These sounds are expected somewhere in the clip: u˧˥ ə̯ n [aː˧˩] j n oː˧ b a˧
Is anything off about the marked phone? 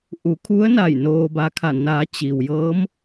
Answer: yes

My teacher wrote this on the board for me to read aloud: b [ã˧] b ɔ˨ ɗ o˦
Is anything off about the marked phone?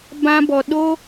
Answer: no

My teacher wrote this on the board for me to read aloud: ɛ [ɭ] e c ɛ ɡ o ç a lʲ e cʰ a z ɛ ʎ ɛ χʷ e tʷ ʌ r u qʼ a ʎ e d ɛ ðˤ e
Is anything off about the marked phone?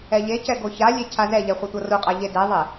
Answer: yes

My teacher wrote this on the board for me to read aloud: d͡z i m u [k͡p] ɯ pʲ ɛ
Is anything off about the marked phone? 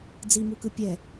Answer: yes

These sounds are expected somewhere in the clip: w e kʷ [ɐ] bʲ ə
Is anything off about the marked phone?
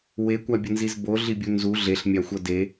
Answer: yes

